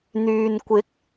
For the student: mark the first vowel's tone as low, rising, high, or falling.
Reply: low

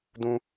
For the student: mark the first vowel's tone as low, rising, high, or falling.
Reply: high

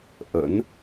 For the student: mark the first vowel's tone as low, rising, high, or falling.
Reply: rising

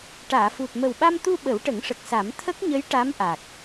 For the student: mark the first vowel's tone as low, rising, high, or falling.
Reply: low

